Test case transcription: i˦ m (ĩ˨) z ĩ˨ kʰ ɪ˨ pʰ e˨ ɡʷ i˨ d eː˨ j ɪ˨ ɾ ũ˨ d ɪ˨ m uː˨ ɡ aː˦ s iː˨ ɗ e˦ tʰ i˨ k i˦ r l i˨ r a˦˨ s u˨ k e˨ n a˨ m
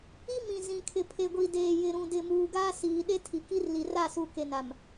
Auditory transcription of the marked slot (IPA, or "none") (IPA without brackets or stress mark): ĩ˨